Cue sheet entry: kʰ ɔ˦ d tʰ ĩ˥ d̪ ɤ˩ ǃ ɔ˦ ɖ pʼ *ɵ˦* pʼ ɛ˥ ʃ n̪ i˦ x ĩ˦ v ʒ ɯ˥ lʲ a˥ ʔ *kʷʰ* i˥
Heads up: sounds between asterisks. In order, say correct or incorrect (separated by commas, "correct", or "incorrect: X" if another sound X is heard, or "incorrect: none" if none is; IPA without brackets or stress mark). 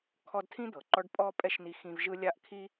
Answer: incorrect: ɔ˦, incorrect: kʰ